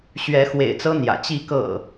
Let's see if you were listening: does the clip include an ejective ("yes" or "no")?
no